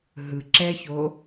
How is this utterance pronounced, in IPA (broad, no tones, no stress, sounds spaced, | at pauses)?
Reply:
ɦ ɯ ǁ ɛ ç o